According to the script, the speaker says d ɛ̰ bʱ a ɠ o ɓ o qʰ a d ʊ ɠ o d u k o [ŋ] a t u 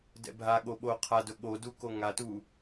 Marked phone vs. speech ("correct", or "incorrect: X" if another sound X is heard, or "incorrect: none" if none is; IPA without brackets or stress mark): correct